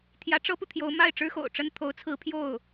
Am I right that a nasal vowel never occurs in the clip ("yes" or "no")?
yes